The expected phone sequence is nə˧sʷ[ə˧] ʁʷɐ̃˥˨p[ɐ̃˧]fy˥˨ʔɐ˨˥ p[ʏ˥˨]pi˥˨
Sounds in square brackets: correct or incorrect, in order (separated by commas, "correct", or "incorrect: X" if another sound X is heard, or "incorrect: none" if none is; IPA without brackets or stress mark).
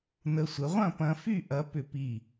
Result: incorrect: ə˨˥, correct, correct